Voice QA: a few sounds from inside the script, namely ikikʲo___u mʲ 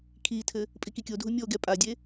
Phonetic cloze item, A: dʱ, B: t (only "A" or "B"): A